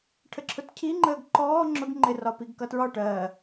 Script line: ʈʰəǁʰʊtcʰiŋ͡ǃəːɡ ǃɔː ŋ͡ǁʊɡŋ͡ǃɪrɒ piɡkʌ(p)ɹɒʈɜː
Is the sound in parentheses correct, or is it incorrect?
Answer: incorrect